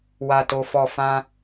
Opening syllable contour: low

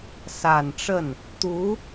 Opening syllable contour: low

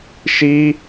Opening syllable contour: high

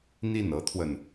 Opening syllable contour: falling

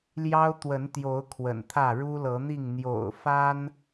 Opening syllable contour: high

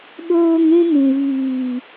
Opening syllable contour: high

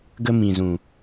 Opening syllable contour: high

